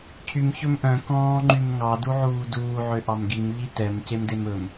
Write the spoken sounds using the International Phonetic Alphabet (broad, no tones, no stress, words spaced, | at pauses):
cʰym çɵmʔœ̃ kɔ̃ːŋ͡ǃymŋɑ duʕuːduː ʕøʔɑmɡim ʎitɛm cemdemɵm